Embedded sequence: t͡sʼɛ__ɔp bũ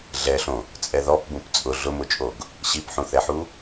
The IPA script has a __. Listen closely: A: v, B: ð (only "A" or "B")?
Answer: B